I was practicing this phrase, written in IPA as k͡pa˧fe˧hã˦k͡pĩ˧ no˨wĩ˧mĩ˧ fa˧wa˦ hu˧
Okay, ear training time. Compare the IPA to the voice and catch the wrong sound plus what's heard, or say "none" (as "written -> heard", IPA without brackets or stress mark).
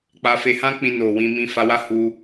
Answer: none